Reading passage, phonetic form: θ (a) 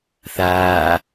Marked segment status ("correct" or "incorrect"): incorrect